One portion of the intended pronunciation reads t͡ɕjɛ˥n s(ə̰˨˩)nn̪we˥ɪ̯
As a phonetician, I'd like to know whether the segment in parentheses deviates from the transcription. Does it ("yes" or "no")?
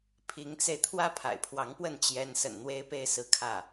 no